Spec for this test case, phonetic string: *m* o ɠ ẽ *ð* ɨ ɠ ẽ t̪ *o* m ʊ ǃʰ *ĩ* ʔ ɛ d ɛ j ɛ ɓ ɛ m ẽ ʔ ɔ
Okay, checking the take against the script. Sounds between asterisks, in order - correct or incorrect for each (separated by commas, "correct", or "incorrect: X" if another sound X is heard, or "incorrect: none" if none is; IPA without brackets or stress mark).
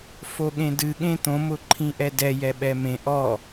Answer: incorrect: f, incorrect: d, incorrect: õ, correct